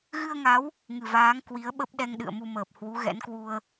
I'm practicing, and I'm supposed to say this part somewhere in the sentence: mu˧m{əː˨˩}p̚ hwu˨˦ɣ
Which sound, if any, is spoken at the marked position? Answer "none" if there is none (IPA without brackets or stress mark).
əː˨˩